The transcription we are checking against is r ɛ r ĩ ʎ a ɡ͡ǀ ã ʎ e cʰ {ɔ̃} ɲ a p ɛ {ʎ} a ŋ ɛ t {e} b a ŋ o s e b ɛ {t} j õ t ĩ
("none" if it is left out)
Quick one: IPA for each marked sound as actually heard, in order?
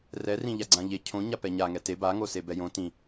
õ, ɲ, e, none

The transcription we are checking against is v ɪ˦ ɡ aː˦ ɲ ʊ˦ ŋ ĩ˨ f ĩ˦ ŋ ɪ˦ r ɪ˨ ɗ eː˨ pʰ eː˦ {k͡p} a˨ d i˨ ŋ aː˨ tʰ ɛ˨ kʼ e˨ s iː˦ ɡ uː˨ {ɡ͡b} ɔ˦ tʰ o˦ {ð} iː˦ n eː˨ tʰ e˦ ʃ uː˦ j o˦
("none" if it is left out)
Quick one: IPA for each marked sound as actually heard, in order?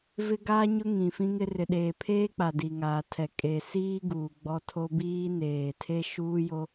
k͡p, ɡ͡b, b

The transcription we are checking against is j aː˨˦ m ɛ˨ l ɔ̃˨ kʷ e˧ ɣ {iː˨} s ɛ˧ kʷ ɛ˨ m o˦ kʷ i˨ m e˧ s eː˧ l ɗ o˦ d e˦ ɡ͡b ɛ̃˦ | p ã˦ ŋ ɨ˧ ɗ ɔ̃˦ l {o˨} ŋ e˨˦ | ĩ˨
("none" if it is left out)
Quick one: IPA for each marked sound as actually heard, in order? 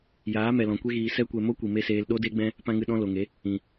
iː˨, o˨

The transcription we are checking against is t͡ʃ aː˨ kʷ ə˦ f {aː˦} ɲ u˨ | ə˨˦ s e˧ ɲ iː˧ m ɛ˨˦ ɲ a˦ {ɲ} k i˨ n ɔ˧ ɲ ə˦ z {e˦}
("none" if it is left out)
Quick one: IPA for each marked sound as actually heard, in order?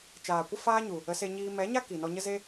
aː˦, none, e˦

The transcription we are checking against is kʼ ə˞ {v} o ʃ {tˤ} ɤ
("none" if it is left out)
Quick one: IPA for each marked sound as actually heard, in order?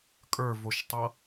v, tˤ

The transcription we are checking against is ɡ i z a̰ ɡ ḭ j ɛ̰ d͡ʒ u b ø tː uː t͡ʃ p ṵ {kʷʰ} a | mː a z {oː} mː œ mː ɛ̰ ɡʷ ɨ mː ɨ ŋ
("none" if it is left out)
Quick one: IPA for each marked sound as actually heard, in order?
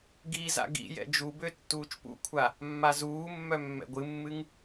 kʷʰ, uː

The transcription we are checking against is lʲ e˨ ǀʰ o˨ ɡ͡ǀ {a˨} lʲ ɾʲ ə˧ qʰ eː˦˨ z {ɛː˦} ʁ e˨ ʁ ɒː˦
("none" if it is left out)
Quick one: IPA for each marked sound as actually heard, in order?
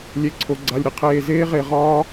a˨, eː˦

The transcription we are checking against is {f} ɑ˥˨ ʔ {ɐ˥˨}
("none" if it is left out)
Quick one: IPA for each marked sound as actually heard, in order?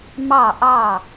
m, ɑ˥˨

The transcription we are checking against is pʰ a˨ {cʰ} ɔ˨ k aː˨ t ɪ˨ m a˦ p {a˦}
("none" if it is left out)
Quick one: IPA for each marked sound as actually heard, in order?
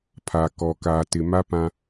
k, ã˦

